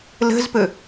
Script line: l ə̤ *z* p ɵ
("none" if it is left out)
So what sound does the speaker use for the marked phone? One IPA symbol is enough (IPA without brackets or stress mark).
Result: z